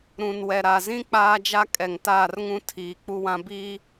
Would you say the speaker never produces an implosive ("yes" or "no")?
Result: yes